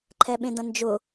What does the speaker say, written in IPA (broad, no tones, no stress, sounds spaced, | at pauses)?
ǃʰ ɛ ɓ ẽ d ɐ̃ n d͡ʒ ʊ